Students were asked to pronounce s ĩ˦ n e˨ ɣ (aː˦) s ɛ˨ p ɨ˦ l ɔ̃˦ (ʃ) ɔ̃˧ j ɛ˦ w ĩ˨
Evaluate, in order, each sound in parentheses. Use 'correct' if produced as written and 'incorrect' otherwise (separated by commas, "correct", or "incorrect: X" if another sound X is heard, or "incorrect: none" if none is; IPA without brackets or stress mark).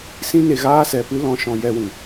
correct, correct